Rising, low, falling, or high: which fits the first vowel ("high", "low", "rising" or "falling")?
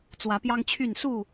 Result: rising